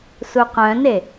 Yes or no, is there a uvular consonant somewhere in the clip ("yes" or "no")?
yes